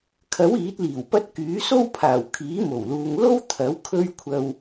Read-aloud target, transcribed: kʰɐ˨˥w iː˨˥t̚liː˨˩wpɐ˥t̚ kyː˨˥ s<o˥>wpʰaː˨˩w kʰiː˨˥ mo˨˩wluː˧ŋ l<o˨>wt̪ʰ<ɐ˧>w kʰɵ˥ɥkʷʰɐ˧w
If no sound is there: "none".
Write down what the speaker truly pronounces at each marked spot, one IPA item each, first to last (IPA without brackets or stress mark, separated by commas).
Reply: o˥, o˥, ɐ˨˥